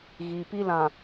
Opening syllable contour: low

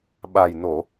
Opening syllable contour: low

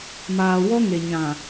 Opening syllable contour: low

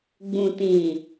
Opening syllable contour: low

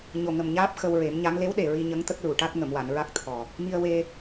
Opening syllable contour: low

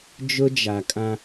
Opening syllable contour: high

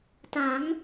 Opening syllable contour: rising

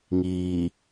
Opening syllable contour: low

